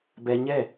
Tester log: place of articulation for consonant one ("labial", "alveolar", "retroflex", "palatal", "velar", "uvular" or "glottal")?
labial